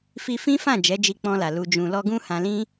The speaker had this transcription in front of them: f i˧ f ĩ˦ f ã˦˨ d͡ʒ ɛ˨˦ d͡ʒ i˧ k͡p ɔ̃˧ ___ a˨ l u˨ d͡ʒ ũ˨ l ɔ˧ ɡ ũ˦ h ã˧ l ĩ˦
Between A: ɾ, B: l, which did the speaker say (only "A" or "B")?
B